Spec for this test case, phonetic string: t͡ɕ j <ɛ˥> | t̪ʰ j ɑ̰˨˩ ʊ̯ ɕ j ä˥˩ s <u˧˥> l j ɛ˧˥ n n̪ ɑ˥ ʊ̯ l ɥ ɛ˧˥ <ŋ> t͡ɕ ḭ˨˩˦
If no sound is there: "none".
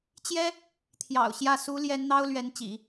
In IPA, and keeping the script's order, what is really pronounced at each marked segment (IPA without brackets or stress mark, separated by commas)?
ɛ˥, u˧˥, n